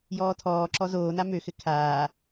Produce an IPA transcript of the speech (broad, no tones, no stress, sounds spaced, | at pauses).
j ɔː tʰ ɔː ǁ ɔ z oː n a m ø x ɘ kʰ aː